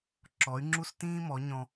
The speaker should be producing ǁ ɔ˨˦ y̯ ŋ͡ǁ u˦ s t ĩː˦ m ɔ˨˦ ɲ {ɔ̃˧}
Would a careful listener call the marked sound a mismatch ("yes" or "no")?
no